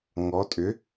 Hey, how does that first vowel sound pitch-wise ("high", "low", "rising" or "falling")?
rising